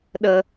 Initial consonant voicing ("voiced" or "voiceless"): voiced